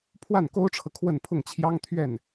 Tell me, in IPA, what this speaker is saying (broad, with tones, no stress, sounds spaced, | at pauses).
pʰ w a˥˩ n k o˥ ʊ̯ ʈ͡ʂʰ ɤ˨ kʰ w ə˥˧ n pʰ ʊ˥˩ ŋ t͡ɕʰ j ɑ˥ ŋ t̪ʰ ɥ ɛ˥˩ n